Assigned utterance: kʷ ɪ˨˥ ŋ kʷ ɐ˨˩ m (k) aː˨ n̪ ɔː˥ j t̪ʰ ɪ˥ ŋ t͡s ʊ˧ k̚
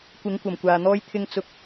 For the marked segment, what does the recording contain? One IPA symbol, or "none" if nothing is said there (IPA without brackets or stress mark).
kʷ